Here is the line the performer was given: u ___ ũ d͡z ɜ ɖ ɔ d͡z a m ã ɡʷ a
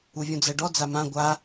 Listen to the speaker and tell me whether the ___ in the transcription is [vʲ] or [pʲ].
vʲ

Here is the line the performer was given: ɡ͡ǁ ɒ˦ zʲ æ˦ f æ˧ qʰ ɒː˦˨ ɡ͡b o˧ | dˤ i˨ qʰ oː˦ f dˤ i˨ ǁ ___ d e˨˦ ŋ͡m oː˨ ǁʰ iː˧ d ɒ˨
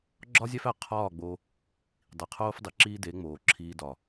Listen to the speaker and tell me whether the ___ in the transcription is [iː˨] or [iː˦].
iː˦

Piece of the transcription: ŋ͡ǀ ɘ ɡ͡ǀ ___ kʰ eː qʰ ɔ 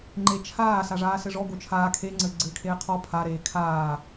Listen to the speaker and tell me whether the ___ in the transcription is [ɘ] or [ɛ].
ɘ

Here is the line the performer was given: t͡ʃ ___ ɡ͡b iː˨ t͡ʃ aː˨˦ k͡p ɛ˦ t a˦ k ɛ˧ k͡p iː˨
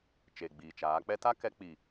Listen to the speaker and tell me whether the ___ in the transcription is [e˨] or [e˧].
e˨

